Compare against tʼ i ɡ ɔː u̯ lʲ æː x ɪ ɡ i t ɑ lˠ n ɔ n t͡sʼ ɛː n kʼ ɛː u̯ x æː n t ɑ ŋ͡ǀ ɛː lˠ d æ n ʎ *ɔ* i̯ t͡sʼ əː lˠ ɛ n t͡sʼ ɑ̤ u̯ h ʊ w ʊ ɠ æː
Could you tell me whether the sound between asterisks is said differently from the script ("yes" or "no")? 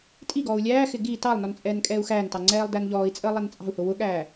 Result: yes